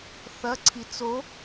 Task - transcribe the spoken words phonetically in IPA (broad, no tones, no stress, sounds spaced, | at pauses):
θ ɐ ǀʰ i t͡s o